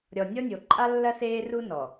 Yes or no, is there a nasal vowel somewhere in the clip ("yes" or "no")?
no